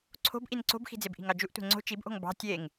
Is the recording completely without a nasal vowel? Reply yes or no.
yes